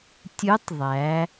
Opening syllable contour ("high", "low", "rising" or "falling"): rising